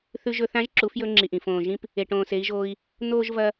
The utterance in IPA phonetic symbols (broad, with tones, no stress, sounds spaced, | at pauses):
θ ʉ˧ ʒ ɵ˧ θ ã˧˥ ʒ ǁ u˩˧ f j ɵ˧ ŋ͡ǁ i˩ ʔ ĩ˩ f õː˩ ʒ ĩ˧ p | e˩ ʈ õː˩ s e˩˧ i̯ ʒ oː˧ i̯ | n̪ oː˥ ʒ v ɐ˥